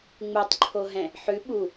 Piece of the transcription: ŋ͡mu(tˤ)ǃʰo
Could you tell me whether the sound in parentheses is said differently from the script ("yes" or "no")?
no